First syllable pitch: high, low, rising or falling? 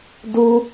high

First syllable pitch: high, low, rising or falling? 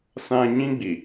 high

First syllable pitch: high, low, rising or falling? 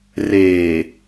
low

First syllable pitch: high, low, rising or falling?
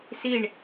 falling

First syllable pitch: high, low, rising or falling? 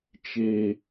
high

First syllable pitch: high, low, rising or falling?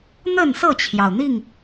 falling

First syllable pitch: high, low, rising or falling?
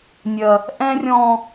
high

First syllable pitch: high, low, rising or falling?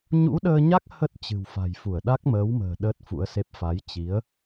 rising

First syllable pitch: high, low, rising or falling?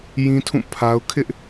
high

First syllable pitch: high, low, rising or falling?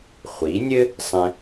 rising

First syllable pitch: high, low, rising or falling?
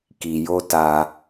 low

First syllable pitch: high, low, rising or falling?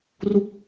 falling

